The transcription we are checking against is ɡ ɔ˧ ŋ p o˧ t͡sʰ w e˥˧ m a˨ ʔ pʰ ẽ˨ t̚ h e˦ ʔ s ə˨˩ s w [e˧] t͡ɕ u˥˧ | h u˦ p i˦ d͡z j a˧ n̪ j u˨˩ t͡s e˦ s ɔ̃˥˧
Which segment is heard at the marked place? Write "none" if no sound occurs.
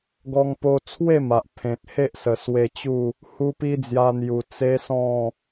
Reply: e˧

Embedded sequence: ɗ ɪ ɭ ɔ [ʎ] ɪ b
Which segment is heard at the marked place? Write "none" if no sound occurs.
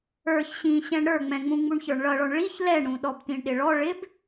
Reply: ɭ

